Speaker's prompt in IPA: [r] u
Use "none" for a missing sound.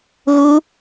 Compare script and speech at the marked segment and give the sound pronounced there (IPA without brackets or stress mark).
ɣ